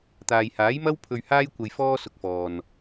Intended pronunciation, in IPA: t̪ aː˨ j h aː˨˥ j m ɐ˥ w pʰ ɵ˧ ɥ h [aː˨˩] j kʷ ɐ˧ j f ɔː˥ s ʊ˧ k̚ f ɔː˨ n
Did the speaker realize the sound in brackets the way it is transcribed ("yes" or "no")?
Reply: no